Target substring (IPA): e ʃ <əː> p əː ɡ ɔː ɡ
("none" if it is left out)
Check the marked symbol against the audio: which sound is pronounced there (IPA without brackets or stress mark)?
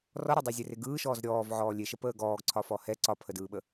ə